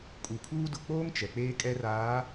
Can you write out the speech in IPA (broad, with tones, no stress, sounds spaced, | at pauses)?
kʼ u˨ kʰ uː˦ d ʊ˨ k͡p oː˦ ŋ t͡ʃ ɛ˨ k͡p eː˦ kʼ ɛ˦ r aː˨˦